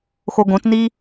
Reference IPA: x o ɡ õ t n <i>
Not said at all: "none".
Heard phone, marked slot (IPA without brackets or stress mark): i